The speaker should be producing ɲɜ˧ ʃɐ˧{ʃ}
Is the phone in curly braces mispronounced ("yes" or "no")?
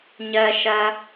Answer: yes